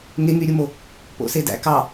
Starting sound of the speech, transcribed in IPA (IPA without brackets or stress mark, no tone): ŋ